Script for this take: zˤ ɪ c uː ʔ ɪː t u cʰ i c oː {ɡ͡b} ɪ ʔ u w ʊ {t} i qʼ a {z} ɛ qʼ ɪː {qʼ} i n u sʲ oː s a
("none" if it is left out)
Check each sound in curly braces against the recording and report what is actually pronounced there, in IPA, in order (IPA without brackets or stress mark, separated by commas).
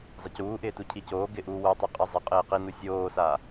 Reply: ɡ, tˤ, zˤ, q